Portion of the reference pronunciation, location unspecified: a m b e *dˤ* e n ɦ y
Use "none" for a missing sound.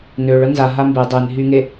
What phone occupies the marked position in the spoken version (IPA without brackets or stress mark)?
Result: dˤ